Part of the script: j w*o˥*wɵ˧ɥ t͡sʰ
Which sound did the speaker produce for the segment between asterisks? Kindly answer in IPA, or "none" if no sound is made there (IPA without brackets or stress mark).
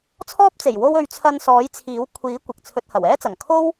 o˥